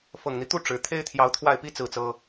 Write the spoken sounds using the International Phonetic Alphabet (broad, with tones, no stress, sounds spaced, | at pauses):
f ɤ˨˩ ŋ n̪ i˦ t̪ u˥˩ ʈ͡ʂ ɻ̩˧˥ t̪ʰ e˥ ɪ̯ t̪ʰ j ɑ˧˥ ʊ̯ t̪ʰ w a˥˩ ɪ̯ p i˥ t͡s ɹ̩˥˩ t͡s ɤ˥